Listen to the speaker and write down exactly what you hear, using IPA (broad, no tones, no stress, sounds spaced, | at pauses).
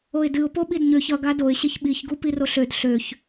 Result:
o ɪ̯ d ɨ ʊ̯ p o ɓ i d ɲ ø ç ʌ ɡ a d o ɪ̯ ɕ e ç ɓ i ç ɡ u p i r o ɬ ø d ɬ ø ç